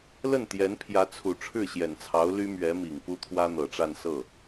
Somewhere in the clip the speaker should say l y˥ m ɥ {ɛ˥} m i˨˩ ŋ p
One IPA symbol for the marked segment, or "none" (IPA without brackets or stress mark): ɛ˧˥